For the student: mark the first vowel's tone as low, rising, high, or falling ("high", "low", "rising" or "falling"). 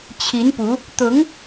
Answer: rising